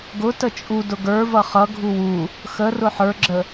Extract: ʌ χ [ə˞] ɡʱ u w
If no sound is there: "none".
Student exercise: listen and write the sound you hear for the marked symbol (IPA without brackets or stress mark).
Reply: ʌ